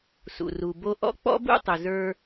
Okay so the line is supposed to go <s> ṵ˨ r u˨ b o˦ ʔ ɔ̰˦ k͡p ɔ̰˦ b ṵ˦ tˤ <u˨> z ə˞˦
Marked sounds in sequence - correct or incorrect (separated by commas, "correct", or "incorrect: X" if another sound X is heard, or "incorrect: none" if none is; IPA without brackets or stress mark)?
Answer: correct, incorrect: ʏ˨